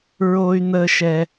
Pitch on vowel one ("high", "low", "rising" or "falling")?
high